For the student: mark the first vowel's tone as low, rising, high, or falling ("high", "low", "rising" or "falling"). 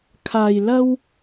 low